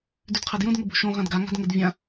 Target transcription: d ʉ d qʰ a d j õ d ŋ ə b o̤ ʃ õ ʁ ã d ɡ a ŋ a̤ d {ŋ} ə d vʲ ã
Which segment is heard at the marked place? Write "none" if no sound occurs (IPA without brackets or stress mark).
ŋ